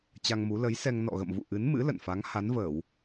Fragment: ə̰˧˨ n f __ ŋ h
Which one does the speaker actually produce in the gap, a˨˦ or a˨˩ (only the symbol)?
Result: a˨˦